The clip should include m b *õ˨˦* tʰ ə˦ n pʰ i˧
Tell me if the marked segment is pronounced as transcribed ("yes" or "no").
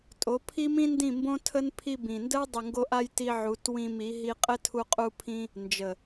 no